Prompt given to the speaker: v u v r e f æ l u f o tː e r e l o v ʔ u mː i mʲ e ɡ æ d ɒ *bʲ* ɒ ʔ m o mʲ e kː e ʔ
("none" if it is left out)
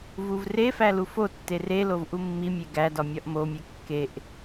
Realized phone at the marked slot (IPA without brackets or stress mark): mʲ